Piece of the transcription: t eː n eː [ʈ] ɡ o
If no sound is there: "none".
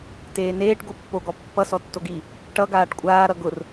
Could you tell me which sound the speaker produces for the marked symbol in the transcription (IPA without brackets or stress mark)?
ʈ